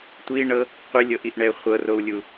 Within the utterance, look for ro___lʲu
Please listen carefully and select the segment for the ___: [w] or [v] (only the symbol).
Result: w